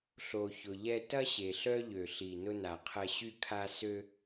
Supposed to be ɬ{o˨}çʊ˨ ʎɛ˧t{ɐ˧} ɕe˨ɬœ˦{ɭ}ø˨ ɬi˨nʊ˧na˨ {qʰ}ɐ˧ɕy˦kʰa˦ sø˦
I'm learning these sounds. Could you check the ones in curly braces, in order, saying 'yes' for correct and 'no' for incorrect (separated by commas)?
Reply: yes, no, no, yes